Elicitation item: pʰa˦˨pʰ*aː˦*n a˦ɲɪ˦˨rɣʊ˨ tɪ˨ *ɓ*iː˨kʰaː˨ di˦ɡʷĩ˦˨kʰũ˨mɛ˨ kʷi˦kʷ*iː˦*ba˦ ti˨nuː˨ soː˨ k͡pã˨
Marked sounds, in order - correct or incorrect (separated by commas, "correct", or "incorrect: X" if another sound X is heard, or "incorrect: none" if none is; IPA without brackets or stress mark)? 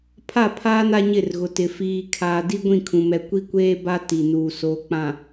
correct, incorrect: f, incorrect: eː˦